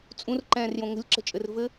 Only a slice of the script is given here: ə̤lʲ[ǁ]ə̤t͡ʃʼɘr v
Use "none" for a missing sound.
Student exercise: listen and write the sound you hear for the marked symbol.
ǁ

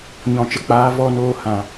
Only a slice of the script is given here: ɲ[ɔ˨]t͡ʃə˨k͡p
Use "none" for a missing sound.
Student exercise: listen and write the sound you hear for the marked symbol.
ɔ̃˨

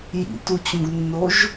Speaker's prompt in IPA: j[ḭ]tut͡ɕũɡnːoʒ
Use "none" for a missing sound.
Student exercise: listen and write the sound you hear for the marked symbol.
ḭ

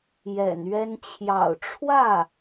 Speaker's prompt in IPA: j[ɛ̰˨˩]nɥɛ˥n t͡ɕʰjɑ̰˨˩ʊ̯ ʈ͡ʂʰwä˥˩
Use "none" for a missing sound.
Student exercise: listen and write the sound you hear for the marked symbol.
ɛ̰˨˩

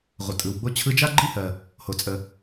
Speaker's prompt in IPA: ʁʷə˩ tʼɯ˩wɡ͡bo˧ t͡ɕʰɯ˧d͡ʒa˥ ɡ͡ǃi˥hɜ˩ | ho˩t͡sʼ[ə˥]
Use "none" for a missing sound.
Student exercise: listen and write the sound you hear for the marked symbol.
ə˩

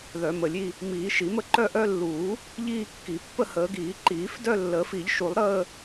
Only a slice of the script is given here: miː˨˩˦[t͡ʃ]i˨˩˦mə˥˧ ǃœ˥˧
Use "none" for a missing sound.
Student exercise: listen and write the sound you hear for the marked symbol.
ʃ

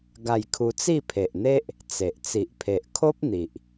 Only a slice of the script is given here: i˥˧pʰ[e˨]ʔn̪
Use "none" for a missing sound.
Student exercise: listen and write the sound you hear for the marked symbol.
e˨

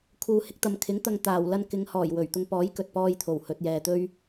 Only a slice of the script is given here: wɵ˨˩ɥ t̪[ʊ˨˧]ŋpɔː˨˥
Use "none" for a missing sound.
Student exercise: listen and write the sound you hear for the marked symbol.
ʊ˧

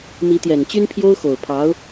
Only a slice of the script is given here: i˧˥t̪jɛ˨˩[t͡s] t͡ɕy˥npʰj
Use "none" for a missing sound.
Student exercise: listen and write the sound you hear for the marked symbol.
n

